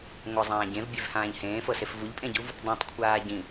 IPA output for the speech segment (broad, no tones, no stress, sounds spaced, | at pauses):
ŋʷ ə zˤ ãː ɟ ẽ v bʲ e v h ãː ʎ h ẽː f ɤ s e f v u ʎ pʼ ẽ ɟ u v | dˤ ũ tˤ kʷʰ aː ɟ ĩ